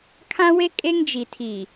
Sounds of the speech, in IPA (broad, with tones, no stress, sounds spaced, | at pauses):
kʰ ã˦ w e˦ kʼ e˦ ŋ d͡ʒ i˨ tʰ i˨